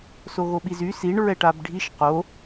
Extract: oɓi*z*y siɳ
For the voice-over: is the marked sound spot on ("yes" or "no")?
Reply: yes